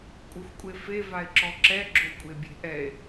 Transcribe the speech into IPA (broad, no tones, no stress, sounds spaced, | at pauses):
kʷʼ ɯ xʷ kʷʼ e f e v a e̯ ǁ ɔ ǁ ɛ ɡ͡ǁ o kʷʼ e bʲ e̤ ʔ ɛ e̯